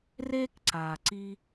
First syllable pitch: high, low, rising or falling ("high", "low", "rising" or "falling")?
high